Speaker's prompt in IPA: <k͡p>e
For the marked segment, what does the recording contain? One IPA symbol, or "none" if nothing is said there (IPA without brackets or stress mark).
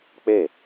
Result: k͡p